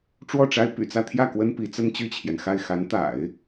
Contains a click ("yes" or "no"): no